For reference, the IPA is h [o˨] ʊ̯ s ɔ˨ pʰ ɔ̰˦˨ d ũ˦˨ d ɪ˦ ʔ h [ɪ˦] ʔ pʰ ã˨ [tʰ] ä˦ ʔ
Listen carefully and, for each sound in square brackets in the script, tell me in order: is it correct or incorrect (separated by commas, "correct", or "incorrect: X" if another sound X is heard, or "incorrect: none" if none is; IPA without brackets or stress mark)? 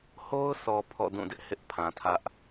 incorrect: o˦, correct, correct